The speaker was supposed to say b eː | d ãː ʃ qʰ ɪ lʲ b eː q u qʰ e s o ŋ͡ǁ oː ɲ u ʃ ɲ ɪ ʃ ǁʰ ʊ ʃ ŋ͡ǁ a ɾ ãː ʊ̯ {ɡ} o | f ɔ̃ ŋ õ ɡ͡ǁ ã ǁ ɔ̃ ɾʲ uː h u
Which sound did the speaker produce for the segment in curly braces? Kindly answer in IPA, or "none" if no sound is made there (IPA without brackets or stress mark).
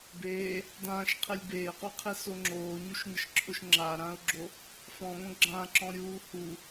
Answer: ɡ͡ǁ